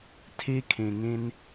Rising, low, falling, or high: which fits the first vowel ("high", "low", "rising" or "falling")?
high